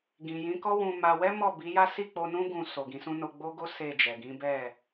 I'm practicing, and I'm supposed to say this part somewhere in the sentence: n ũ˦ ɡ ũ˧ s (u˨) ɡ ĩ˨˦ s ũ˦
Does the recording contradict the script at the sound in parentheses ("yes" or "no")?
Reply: yes